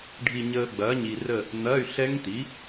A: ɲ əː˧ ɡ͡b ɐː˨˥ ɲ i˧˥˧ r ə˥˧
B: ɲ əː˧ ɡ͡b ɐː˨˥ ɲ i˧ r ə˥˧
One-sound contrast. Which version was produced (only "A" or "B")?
B